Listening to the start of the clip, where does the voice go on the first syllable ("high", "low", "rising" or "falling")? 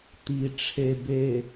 low